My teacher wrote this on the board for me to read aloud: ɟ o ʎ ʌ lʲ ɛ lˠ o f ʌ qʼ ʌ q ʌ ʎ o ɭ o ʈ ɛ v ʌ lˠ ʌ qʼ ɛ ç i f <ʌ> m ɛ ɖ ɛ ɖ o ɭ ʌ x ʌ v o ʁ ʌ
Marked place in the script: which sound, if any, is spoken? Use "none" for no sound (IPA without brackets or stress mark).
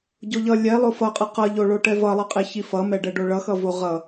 ʌ